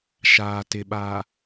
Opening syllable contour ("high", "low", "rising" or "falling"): low